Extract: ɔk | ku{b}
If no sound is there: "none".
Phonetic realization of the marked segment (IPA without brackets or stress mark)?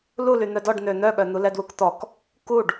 ɖ